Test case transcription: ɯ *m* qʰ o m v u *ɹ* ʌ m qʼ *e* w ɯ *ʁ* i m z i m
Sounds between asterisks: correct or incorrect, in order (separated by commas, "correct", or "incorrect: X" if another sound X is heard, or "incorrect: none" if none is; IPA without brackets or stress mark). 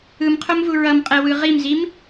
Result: correct, correct, incorrect: ɛ, correct